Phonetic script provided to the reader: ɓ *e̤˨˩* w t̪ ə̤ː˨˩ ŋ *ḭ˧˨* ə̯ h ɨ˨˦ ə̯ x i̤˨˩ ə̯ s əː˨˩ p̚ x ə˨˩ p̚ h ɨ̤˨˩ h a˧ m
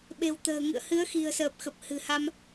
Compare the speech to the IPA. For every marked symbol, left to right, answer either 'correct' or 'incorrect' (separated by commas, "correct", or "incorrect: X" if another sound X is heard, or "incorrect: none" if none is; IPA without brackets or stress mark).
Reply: correct, incorrect: ɨ̰˧˨